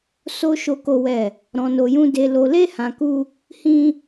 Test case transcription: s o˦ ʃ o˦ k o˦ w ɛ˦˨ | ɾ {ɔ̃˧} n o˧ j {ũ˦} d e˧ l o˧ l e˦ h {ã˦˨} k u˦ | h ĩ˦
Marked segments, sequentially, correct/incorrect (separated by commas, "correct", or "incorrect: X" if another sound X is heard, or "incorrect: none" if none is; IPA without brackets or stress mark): correct, correct, incorrect: ã˧